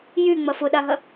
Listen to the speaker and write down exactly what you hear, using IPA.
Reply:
jy ŋ͡mɐfʊɗaɦɐ

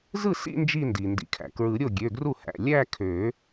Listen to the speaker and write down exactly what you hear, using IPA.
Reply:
zɯ˥˩sḭ˥˧ nd͡ʒi˥˧ndi˩ ndḭ˩kʰæ̰˩kɹɯ˨˩˦ɾʲo˥˩ ɡʲø˩˧˩ ɡru˥˩hæ̰˩˧˩ lʲæ˥˧kʰø˨˩˦

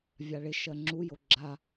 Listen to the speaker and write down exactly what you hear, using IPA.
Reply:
vʲaɭɪʃɜ ŋ͡ǁujo ɡ͡ǁa

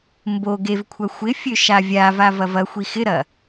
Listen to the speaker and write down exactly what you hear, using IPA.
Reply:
mbo ɡevkʷʰɐ xʷɪfʲø ʃavʲava vɐvɐxʷi xɪɾɐ

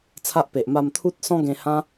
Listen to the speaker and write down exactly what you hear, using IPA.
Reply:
t͡sʰa˦ʔpe˨ʔ ma˧mt̪ʰu˦t̚sɔ̃˦ ɡẽ˧hã˦

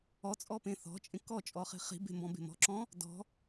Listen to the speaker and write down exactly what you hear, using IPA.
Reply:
ɔt͡sʼɔpẽ θɔ̤t͡ʃʼẽ kɔt͡ʃʼɔχi̤ χi̤be̤mbɔ̃be̤ mɔ̤ǁɔ̃ | dɔ̤

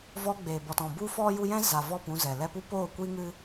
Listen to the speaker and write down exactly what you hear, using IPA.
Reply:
vɔ˧ɡ͡beː˨bɔ˨tɔ̃˨ bu˧ fɔ˦ ju˧ jɛ̃˦za˨ vɔ˦˨p ũ˧zɛ˨ lɛ˧pu˧ poː˦˨kʷiː˦ŋɨ˦

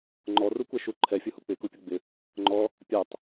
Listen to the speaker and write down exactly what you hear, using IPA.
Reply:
ŋ͡ǃɔrukʷɛʃu ǃʰɛfʲʊhu k͡pɪkupʲʊ ɡ͡bɪ | ŋ͡ǃɔ | pʲatˤ

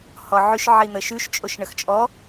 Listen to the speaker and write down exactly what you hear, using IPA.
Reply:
hɔʕʉʃʕi n̪əʃʉʃt͡ʃʼoʃ ɳəxt͡ʃʼɔ

